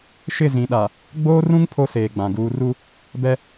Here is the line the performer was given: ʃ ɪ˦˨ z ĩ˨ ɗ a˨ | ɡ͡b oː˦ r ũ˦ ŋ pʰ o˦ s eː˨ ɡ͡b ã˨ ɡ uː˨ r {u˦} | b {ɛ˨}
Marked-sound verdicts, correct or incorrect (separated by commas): correct, incorrect